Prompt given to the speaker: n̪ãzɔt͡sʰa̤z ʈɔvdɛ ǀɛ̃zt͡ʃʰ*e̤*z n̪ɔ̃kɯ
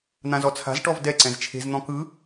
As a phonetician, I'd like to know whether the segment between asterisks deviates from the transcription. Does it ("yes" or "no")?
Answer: no